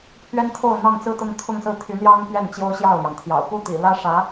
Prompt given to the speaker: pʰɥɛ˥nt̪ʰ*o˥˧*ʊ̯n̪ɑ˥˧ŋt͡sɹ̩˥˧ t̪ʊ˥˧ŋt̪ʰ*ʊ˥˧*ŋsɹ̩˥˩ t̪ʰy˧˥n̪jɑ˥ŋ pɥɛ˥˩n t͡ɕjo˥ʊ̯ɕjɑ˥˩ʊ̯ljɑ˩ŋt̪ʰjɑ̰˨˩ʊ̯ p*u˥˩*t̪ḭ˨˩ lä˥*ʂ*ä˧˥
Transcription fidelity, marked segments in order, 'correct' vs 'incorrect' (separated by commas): correct, correct, correct, correct